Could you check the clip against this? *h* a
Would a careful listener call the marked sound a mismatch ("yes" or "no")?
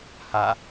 no